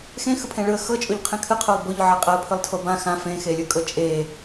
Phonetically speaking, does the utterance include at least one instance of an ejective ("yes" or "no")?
yes